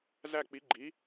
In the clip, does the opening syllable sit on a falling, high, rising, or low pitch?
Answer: falling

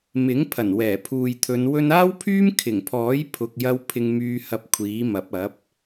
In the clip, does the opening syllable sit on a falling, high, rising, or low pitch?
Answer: rising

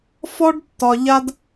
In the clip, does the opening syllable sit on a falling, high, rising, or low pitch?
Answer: high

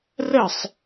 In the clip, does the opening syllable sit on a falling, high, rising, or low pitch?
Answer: falling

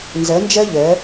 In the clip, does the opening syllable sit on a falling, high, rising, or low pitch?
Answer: rising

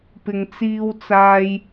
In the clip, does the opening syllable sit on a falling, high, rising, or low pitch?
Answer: low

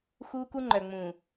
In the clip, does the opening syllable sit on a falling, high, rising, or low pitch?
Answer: high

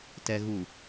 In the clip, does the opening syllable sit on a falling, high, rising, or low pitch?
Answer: low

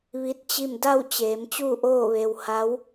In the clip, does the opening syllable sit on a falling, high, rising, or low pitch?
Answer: rising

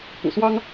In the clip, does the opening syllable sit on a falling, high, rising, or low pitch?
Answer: low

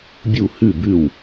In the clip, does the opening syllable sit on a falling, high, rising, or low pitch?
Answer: falling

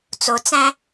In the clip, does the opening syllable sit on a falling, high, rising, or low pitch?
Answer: low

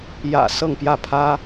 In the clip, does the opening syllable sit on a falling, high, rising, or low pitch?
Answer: low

